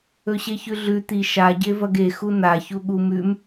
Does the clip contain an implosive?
yes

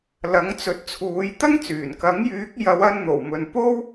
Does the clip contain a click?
no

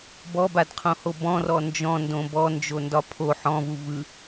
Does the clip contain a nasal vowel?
yes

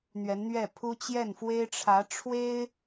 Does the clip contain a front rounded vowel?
no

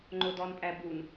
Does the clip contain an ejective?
yes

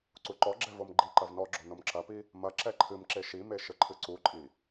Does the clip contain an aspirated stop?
yes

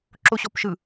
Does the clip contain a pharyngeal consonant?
no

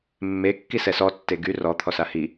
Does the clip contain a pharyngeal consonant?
no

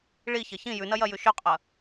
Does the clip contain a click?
no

